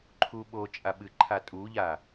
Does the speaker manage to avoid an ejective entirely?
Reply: no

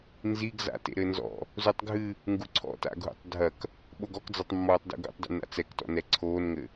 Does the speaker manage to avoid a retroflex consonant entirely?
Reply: yes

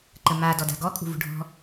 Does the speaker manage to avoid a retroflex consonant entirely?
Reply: no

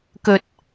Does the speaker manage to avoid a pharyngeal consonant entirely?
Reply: yes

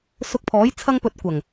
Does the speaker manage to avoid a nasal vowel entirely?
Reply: yes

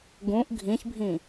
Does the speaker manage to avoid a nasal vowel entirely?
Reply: no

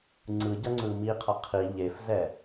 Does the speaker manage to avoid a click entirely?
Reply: no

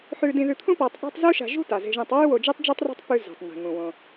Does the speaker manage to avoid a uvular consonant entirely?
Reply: yes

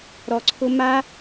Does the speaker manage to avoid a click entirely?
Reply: no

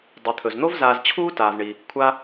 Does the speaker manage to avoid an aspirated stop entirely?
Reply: no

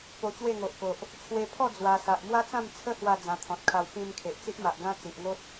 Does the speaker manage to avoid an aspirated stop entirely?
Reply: no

